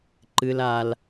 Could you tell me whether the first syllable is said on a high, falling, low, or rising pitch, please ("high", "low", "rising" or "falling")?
high